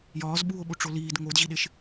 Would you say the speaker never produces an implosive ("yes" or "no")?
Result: no